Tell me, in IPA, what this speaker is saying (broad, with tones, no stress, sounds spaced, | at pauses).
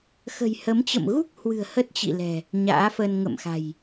x ə̤˨˩ j h ə˨˦ m t͡ɕ ə̰˧˨ m ɣ u˦˥ k̚ h w ɨ̤˨˩ ə̯ h ə˦˥ t̚ t͡ɕ ḭ˧˨ l ɛ̤˨˩ | ɲ a̰ː˧˥ f ə˧ n ŋ ə̰˧˨ m x a̤˨˩ j